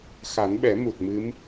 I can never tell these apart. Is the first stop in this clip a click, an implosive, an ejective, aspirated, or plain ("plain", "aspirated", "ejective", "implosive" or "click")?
implosive